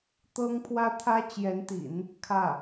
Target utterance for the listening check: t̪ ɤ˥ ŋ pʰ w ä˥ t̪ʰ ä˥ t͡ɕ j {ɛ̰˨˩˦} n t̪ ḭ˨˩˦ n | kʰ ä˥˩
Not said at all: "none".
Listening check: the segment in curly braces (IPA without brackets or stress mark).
ɛ˧˥